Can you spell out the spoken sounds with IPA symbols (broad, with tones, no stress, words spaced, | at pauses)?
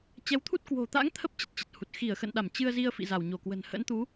t͡ɕɛ˨˦wt̪ʰu˦˥t̚ kwo̤˨˩t̪a̰˧˥ŋ t̪ʰə˦˥p̚ t͡ɕə˨˩t̚t͡ɕə˨˩t̚hu˨˩t̚ xi˧˩ə̯xə̰˧˨nɗa˧˩m t͡ɕɨ˧ə̯zi˧ə̯ fḭ˧˨za˧˩w ɲo˧˩kwə̤˨˩n hə̰˧˥nt̪u˨˦